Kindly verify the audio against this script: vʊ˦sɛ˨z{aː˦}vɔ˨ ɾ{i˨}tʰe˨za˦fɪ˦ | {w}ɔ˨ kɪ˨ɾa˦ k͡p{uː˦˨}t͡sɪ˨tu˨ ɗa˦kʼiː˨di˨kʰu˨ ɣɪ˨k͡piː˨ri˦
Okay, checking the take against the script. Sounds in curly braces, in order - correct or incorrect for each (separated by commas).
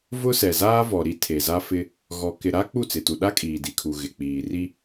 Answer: correct, incorrect, incorrect, incorrect